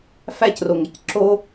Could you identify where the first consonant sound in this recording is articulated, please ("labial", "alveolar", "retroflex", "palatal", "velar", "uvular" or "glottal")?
labial